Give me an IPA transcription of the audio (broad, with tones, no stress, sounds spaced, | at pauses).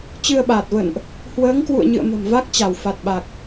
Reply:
t͡ɕ ɨ˧ ə̯ ɓ aː˨˩ t̚ v ə̰˧˨ n ʔ | h w əː˨˦ ŋ k w ṵ˧˨ ə̯ ɲ ɨ̰˧˨ ə̯ m ə̤˨˩ m v a˦˥ k̚ t͡ɕ a˧˩ w f a˨˩ t̚ ɓ a˨˩ k̚